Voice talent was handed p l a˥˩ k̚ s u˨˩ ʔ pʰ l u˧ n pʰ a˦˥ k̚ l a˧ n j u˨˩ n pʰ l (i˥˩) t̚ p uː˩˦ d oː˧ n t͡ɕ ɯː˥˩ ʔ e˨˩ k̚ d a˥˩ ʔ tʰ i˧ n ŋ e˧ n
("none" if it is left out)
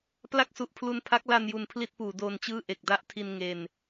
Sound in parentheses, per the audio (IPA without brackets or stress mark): i˥˩